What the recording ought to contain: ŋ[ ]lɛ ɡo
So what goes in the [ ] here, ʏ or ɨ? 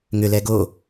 ʏ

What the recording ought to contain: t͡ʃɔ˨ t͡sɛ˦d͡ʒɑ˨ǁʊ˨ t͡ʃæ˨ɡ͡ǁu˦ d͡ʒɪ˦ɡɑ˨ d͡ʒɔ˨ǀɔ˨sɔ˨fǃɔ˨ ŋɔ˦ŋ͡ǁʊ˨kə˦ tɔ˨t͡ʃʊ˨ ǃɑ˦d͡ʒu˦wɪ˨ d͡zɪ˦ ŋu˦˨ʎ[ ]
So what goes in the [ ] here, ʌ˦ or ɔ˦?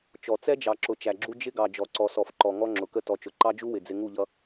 ʌ˦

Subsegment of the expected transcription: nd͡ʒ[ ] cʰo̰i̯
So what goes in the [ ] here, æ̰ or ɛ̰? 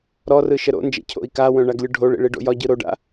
ɛ̰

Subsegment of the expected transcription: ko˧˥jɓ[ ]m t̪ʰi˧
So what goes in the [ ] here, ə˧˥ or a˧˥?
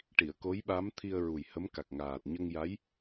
a˧˥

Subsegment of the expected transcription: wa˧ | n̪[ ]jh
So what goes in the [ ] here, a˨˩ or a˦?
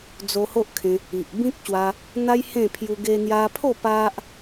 a˦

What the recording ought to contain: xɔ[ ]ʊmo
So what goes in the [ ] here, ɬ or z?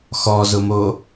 z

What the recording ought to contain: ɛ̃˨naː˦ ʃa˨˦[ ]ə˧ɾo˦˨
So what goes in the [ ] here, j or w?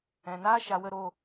w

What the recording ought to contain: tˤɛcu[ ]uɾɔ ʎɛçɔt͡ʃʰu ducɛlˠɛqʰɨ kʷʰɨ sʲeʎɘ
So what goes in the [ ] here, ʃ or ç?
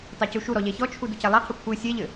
ʃ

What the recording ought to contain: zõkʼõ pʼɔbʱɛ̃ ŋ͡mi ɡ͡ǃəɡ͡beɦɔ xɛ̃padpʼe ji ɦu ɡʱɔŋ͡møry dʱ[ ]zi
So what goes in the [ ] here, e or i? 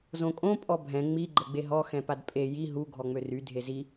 e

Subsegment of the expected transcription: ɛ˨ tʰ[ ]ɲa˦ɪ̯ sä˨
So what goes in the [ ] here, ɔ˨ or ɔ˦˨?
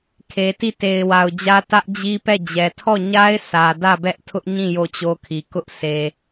ɔ˦˨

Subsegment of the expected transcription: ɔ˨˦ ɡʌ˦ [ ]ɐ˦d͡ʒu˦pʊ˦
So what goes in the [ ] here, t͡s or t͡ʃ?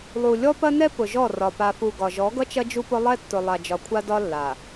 t͡ʃ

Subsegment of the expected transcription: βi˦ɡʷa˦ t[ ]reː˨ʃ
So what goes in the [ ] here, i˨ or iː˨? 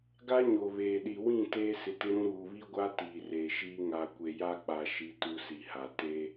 iː˨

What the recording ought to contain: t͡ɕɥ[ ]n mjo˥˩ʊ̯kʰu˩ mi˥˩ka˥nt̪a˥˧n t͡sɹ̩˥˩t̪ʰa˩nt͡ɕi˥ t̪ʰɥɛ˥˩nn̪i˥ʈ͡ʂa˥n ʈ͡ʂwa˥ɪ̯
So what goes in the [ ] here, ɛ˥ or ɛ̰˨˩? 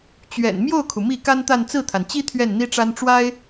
ɛ̰˨˩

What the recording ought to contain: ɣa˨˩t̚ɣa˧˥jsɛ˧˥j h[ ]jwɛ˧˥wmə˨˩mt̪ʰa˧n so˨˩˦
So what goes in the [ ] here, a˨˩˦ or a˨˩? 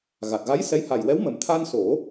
a˨˩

